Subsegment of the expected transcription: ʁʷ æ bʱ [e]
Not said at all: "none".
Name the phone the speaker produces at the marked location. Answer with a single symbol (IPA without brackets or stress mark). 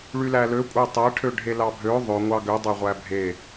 e